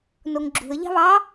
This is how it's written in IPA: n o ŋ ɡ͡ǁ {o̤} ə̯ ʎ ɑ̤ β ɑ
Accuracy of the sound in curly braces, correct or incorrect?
incorrect